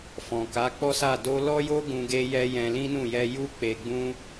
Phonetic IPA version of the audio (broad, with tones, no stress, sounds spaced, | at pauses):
f ɔ̃˨ k a˨˦ k͡p ɔ˦ s a˦˨ d o˧ l ɔ˦ j o˦ ɡ ũ˧ ɡ e˦ j ɛ˦ j ɛ̃˧ l ĩ˦ n ũ˦˨ j ɛ˧ j u˦ k͡p e˧ ɡ͡b ũ˦